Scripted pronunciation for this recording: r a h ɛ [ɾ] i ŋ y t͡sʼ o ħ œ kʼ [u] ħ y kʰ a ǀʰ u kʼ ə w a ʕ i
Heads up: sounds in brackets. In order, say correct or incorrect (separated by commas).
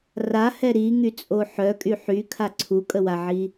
correct, incorrect